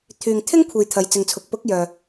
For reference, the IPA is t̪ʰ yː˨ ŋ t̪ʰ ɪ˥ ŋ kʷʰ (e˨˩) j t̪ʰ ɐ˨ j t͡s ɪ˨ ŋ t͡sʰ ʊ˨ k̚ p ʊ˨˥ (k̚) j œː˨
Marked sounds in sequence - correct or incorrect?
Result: incorrect: e˨, correct

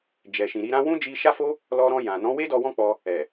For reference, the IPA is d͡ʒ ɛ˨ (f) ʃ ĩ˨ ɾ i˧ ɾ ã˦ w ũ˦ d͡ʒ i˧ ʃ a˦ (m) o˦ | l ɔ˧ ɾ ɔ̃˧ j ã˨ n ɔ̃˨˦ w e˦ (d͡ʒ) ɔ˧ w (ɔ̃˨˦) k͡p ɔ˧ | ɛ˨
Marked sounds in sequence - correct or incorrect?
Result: incorrect: none, incorrect: f, incorrect: d, incorrect: ɔ̃˦

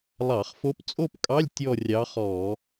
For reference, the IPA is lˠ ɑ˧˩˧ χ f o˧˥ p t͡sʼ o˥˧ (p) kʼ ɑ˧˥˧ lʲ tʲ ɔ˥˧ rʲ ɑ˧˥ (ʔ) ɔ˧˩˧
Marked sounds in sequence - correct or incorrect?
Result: correct, incorrect: χ

